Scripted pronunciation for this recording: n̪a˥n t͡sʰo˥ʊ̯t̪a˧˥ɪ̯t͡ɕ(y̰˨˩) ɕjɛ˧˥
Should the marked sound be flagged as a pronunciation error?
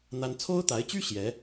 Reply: yes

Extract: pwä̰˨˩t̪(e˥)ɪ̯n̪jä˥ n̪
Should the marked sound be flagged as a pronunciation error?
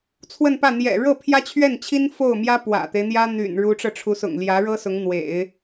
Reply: yes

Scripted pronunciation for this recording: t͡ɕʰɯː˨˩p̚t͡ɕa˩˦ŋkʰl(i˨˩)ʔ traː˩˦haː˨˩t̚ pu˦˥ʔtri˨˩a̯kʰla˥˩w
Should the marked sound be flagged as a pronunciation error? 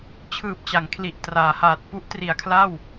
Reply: no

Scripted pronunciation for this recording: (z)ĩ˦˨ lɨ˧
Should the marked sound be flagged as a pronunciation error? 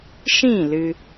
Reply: yes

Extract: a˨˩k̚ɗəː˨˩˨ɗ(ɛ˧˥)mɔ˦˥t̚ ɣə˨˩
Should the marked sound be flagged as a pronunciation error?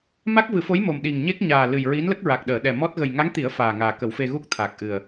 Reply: yes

